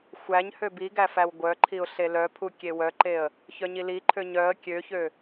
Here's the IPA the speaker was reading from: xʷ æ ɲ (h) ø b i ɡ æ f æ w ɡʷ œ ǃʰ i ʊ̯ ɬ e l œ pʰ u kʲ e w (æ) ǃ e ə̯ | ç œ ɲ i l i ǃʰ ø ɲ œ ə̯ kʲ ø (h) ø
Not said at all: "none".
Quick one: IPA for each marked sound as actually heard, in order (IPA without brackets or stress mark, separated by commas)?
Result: h, œ, ç